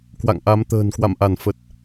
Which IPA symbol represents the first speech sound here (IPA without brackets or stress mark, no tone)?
k